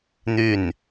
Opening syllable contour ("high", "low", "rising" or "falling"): falling